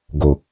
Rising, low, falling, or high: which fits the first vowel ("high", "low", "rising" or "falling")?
low